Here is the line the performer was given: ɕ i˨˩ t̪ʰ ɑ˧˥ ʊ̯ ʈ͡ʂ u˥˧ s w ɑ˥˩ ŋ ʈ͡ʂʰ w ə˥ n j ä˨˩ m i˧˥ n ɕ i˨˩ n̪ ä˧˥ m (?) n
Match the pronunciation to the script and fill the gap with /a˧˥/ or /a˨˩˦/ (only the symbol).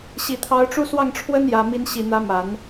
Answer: a˨˩˦